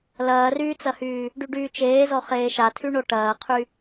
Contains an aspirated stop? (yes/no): yes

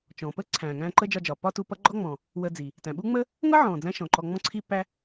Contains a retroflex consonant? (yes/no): no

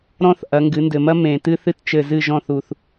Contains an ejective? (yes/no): no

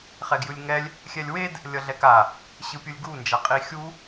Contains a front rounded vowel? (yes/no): no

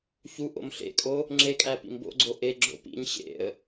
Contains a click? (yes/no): yes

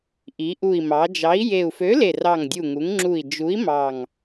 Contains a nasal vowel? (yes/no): no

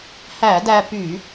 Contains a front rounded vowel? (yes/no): yes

